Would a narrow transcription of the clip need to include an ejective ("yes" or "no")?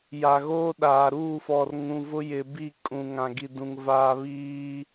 yes